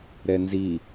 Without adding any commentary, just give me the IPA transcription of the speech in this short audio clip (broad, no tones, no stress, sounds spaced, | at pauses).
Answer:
ɾ ɛ n z i